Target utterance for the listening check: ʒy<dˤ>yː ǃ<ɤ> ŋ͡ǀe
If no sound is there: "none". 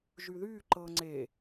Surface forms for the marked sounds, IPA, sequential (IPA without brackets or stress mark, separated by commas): ð, ɤ